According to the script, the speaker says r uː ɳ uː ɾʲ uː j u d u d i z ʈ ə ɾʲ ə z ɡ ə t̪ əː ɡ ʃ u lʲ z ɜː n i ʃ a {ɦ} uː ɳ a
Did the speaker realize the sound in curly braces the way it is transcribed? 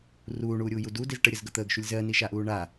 no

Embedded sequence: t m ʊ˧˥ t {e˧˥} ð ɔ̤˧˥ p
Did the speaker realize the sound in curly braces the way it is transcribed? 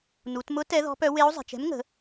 no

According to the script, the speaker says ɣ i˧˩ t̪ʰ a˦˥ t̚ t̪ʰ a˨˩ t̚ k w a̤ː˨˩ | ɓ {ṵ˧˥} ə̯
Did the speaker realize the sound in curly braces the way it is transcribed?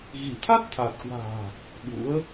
yes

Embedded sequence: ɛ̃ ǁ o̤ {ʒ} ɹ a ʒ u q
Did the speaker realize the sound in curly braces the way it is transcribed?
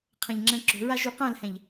no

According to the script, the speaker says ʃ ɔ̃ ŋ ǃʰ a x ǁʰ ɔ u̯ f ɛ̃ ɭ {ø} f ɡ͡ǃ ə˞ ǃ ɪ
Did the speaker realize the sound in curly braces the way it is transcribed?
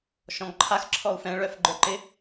no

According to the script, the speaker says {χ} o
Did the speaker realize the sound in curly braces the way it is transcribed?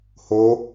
no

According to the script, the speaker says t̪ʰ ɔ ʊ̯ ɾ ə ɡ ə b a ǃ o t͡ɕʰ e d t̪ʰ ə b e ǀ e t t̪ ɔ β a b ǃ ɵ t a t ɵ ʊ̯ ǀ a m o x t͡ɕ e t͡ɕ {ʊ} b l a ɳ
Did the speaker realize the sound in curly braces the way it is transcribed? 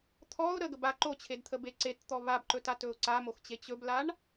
no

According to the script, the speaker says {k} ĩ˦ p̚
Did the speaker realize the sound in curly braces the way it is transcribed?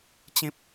no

